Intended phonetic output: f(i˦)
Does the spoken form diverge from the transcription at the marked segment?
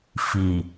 yes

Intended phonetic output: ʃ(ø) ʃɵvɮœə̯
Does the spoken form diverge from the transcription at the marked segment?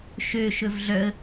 no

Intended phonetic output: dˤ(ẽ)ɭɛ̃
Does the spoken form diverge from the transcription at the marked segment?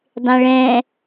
no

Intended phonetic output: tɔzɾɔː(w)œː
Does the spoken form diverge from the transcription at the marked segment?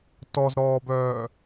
yes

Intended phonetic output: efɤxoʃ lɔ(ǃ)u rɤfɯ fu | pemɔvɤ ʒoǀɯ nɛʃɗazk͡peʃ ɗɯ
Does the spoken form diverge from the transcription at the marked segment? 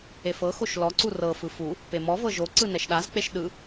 yes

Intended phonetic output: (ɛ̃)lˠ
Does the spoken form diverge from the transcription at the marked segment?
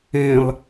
no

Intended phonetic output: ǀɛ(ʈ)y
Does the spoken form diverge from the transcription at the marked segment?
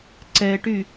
no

